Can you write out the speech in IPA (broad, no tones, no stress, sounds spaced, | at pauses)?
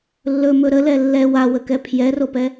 lː ɵ m ɵ ɾ ə l ɛ lː ɛ w a w ə k ɛ pʰ j ɛ r o p ɛ